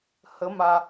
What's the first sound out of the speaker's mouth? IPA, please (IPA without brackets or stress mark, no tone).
h